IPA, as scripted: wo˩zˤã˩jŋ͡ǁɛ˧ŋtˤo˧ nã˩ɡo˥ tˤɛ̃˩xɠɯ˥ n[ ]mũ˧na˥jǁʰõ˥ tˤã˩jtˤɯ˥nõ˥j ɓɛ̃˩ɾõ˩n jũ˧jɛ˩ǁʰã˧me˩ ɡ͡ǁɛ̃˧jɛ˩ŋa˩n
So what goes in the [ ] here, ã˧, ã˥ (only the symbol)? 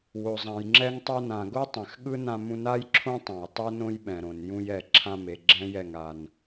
ã˧